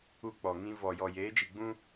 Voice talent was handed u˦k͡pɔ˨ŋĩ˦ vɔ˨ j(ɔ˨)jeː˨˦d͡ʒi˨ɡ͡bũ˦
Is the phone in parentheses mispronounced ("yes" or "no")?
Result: no